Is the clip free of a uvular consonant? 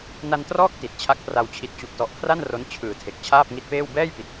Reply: yes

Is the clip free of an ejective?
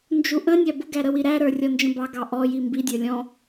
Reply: yes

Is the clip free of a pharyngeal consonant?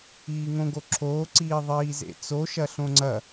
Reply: yes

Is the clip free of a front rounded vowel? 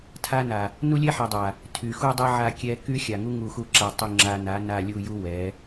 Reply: no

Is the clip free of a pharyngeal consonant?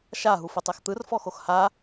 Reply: yes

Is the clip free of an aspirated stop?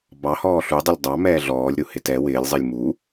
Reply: yes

